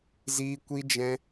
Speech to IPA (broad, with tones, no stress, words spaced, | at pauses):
ziː˦ kʷi˦d͡ʒɛ̃˦